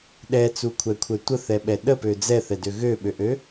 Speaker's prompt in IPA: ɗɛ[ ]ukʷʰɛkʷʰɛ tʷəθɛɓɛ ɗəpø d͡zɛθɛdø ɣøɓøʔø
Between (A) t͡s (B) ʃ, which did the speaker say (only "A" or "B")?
A